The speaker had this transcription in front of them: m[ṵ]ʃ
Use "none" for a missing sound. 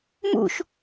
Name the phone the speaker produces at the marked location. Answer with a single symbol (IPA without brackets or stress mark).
ṵ